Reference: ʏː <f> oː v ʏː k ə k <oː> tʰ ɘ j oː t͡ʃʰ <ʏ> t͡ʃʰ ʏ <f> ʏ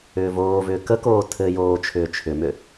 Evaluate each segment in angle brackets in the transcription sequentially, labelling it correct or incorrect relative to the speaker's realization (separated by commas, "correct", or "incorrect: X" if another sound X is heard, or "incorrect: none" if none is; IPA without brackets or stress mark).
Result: incorrect: v, correct, incorrect: ʏː, incorrect: m